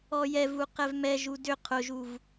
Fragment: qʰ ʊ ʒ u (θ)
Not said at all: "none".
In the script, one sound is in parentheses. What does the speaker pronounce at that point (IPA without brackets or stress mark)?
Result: v